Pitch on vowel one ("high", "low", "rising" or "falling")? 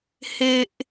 high